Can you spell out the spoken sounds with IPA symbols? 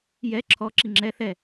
j ɛ ǁʰ ɔ ǁ i ŋ͡ǁ ɛ θ ɛ

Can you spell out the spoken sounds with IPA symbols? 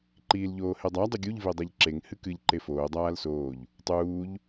ǃ iː l ʎ oː h e dˤ a dˤ ɨ ɡʲ u ʎ v e dˤ ɛ ʎ ǁ e ŋ h ɨ k ɨ ʎ ǃ e f oː dˤ aː l s oː ʎ | tˤ uː ʎ

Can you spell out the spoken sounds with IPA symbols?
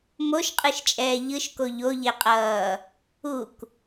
m o ʃ qʼ ɯ ʃ t͡ʃʼ ɛː ʎ ɯ ʃ k o ʎ o ʎ e qʼ ʌː | u k

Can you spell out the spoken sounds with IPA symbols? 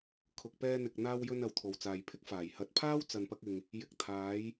kʰ ʊ˨ k̚ p ɛː˧ n̪ ɪ˨ k̚ n̪ aː˧ w j ɵ˧ n ɐ˨ w t̪ʰ o˨ w t͡s aː˨ j pʰ ɪ˥ k̚ f aː˨˩ j h ɐ˨˥ t̚ pʰ aː˥ w t͡s ɐ˧ n p ɐ˥ k̚ ɪ˧ ŋ | j ɪ˨ k̚ t̪ʰ aː˨˧ j

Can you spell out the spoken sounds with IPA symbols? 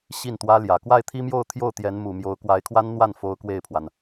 ɕ i˥˩ n t̪ w ä˥ l j ä˨˩ k w a˥˩ ɪ̯ t̪ʰ i˥ m j o˥˧ ʊ̯ t̪ʰ j o˥˩ ʊ̯ t̪ j ɛ˧˥ n m u˨˩ m j o˧˥ ʊ̯ k w a˧˥ ɪ̯ kʰ w a˥ n n̪ w a˥˩ n f o˥ ʊ̯ k w e˥˩ ɪ̯ pʰ w a˩ n

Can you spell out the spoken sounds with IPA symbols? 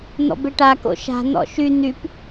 n̪ ɔ̰ b e ʈ a k o̰ ʃ a̤ n̪ ɔ̰ ʃ y n̪ y p

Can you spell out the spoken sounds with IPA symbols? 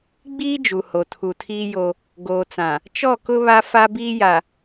ɡ͡b iː˦ d͡ʒ u˨ h o˨ tʰ u˨ tʰ iː˦ j o˦ | ɡ oː˨ t͡s ã˨ | t͡ʃ ɔ˦˨ k ʊ˦ β a˦ f a˦ b iː˦ j a˨

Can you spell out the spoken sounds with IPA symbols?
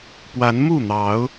p w a˨˦ n m u˥˨ n̪ ɑ˨˦ ʊ̯

